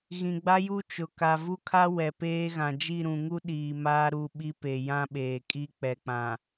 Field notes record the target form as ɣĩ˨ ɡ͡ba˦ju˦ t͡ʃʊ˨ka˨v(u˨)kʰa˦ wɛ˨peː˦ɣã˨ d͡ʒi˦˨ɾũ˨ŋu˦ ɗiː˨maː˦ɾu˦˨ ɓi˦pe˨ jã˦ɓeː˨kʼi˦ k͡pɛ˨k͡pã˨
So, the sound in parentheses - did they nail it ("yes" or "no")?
no